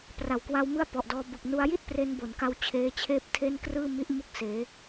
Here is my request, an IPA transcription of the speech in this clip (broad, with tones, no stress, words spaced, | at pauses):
pra˨˩wkwa˧wmɯ˦˥a̯ pɔ˨˩ʔdɔː˧ bɯ˨˩k̚nu˧a̯ji˥˩t̚pre˧n bo˨˩n ka˦˥wt͡ɕʰeː˧t͡ɕʰeː˦˥p̚ tʰe˥˩nkrɯː˥˩ mi˦˥ʔ mu˥˩k̚seː˩˦